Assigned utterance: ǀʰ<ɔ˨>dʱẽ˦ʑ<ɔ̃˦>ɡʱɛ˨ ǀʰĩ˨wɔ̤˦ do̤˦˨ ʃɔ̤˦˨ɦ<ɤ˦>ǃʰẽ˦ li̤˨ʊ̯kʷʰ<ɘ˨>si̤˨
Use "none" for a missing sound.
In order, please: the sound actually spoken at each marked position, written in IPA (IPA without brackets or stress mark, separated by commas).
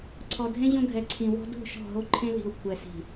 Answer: ɔ˨, õ˦, o˦, ɛ˨